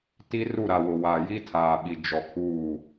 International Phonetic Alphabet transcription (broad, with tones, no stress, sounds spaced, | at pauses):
t i˦ r u˦˨ ɾ a˨ w ʊ˨ w a˨ j i˦ tʰ aː˨ ɓ i˨ d͡ʒ ɔ˨ kʰ uː˦˨